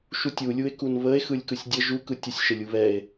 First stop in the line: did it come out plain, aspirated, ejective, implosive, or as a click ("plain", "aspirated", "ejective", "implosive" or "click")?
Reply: plain